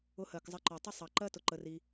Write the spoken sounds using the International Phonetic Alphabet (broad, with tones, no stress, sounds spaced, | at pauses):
ʊ˧ h ɜ˩ k zˤ ə˧ ǃ ɔ˩ tˤ ə˥ sˤ ɑ˩ ǃ ɜ˥ t ʊ˩ ǃ ə˩ r i˩